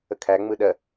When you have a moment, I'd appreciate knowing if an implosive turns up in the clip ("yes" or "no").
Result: yes